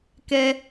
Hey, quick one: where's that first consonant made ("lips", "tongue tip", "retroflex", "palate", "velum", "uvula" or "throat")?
velum